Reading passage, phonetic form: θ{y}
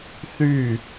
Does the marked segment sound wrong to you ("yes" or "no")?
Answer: no